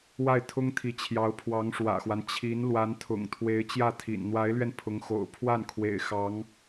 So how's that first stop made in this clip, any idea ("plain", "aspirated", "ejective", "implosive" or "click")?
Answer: aspirated